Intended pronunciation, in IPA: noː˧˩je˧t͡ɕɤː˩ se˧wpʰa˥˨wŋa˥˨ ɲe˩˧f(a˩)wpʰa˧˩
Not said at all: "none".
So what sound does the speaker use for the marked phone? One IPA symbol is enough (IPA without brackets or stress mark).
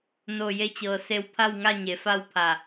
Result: a˥˨